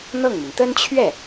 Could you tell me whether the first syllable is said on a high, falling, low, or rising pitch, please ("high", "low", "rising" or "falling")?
falling